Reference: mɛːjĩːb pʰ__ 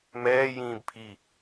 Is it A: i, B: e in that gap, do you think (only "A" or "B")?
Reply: A